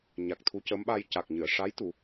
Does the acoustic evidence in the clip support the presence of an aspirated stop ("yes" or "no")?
yes